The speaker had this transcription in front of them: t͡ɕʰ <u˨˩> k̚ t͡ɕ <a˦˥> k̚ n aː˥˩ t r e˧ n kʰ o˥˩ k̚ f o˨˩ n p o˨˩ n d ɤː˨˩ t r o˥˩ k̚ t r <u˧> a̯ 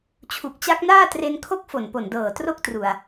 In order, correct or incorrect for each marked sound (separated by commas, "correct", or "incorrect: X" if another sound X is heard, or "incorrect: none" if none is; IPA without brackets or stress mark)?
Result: correct, correct, incorrect: u˨˩